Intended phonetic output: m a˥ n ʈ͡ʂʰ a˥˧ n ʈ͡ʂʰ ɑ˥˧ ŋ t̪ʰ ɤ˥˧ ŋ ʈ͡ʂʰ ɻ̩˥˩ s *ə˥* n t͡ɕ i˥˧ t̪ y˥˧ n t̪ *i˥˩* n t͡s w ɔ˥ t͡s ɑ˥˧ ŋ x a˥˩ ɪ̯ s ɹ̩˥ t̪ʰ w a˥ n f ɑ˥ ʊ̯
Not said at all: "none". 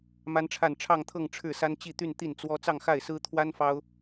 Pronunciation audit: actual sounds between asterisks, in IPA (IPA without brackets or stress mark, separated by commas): a˥, i˥˩